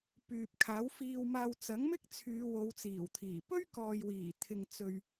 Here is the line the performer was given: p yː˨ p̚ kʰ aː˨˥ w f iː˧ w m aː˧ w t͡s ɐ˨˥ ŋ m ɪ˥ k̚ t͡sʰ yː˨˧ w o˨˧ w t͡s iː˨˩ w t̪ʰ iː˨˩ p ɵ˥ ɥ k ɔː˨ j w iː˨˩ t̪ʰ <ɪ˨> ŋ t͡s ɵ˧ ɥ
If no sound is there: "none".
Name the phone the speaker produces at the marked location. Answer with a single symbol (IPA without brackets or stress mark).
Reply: ɪ˨